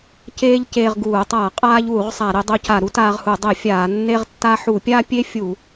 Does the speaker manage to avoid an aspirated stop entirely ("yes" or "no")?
yes